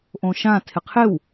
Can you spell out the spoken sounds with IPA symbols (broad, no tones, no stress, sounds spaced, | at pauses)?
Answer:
ʔ õ ʃ ã tʰ ɪ qʰ ɪ w